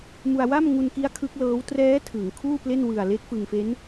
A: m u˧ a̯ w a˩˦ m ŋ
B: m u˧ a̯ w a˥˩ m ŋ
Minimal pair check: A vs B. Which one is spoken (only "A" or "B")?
B